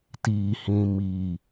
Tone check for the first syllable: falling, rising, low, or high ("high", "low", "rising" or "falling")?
low